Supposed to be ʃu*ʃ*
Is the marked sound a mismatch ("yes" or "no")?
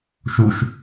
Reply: no